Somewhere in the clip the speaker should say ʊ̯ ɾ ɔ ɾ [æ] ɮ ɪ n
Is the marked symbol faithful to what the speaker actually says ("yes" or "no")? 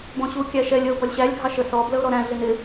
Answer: no